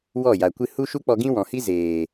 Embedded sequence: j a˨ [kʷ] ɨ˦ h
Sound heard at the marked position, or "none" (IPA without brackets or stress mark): kʷ